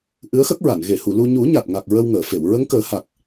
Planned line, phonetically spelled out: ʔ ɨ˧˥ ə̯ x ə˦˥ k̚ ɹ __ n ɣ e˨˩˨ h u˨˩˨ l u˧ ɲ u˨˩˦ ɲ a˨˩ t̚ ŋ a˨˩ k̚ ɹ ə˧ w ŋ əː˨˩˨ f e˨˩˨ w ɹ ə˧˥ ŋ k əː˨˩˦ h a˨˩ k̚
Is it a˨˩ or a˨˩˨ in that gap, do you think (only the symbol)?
a˨˩˨